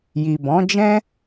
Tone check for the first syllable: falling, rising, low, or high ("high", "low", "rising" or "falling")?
low